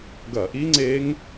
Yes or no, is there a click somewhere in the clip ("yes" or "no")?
yes